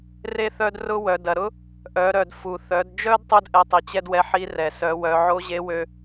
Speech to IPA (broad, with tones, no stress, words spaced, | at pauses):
re˥θœ˥drʊ˥wœ˩˧ dɐ˩ɾʊ˥ | ʔœ˩˧ɾœ˩d fu˩θœ˩˧dd͡ʒœ˥d tˤu˥dʔɛ˧ tˤi˩t͡ɕɛ˥dwɛ˧˥ħi˧˥ rɛ˩ sœ˩˧wœ˩˧ ʕo˧˥ʑe˧˥wø˧